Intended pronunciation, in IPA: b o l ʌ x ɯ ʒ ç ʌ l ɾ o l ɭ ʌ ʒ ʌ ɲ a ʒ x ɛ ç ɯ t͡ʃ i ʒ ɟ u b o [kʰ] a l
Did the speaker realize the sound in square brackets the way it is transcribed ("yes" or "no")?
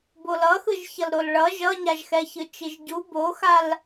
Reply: no